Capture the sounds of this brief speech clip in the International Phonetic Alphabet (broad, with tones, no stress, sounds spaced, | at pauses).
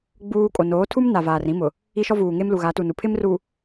ɡ͡b uː˦ kʼ o˨ n oː˨˦ tʰ u˦ m n a˨ v aː˨ r ĩ˦ m ʊ˨ | i˦ ʃ ɔ˦ v uː˨ ŋ e˦ m l u˨ ɣ a˨˦ t u˨ n u˨ pʰ ɪ˦ m r u˨